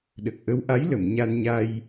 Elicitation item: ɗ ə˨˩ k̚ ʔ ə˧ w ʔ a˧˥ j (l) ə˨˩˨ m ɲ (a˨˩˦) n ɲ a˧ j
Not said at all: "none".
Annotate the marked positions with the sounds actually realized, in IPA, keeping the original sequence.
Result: l, a˧

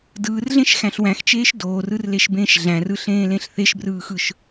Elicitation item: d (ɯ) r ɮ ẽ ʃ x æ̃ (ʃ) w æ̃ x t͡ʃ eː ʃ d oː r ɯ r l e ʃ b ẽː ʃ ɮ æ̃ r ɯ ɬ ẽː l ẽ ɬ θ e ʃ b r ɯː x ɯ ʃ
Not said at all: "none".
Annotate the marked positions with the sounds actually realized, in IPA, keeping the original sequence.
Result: ɯː, ɬ

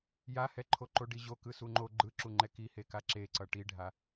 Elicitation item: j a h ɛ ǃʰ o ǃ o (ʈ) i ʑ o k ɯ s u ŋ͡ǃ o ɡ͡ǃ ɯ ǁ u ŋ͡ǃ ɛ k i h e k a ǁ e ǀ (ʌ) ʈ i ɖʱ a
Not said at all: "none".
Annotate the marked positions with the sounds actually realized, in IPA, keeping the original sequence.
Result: ɖ, ʌ

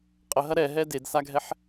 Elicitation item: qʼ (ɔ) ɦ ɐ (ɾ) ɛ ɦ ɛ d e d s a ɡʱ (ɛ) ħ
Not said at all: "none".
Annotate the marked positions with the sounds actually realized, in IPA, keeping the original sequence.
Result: ə, ɾ, ɛ

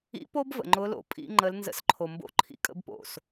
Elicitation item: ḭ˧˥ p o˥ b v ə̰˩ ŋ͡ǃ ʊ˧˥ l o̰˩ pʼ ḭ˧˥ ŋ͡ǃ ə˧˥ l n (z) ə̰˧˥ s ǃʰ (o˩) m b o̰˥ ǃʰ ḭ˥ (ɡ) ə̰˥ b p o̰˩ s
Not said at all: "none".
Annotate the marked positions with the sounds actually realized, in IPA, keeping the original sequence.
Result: z, o˩, kʼ

